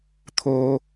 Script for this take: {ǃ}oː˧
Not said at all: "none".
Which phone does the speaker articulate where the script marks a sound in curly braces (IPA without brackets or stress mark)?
t̪ʰ